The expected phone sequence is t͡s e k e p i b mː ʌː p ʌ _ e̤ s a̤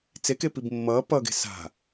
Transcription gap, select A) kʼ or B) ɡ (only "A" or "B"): B